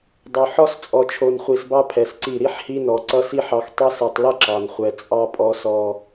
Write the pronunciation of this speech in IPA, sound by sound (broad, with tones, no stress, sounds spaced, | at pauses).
dˤ o˨ ħ ɔ˦ s t͡sʼ ɔ˨ t͡ʃʰ o˨ n χʷ i˨ s b ɑ˦ pʰ ɛ˨ s ǀ i˦˨ ɾ i˦ ħ h i˦ n ɔ˨ ǀ ʌ˦ s i˦ ħ ɑ˨ x tˤ ʌ˦ s ɛ˨ tˤ l ʌ˦ ǁ ɑ˨ n χʷ ɛ˨ t͡sʼ ɑ˦ pʼ ɔ˦ s ɔ˦